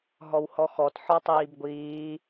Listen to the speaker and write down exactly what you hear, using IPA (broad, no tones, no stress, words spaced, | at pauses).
ɦɔwhɔxɔt ħɔtˤiːbɡʷiː